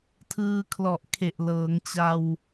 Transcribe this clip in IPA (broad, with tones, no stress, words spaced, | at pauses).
tʰɯː˧kʰlɔ˨˩ʔ kʰe˨˩ʔlɤː˩˦ŋt͡ɕa˧w